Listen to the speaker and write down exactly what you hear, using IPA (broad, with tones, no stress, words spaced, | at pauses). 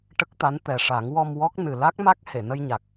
ʈə˦˥k̚t̪a˧˥nt̪ɛ˨˩ʂa˨˩˦ŋ wɔ˧mwɔ˦˥k̚ nɨ˨˩la˦˥k̚ma˦˥k̚ he˨˩˨nə˧jɲa˨˩k̚